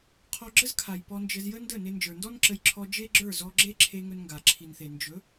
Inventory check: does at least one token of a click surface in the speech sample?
yes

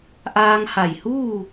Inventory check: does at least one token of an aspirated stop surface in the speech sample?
no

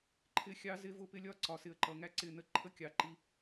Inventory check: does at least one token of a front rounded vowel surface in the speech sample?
no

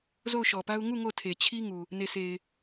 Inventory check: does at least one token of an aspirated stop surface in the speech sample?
yes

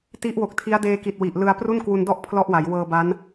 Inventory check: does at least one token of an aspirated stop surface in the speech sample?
yes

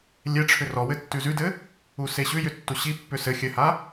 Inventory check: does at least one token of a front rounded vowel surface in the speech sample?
yes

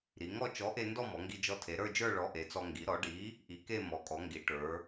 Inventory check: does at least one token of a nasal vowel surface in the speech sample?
no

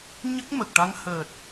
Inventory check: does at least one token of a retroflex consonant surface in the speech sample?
yes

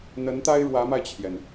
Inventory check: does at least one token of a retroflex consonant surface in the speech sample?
yes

